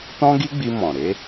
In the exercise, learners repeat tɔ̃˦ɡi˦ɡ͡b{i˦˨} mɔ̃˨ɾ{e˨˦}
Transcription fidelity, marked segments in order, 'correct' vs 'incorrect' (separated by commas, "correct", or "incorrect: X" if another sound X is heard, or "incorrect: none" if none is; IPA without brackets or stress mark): incorrect: i˧, correct